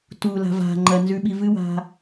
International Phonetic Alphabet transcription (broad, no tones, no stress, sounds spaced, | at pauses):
t u l a̤ v a̤ ŋ͡ǃ ɐ n z ʉ ɓ i v ɨ w a̤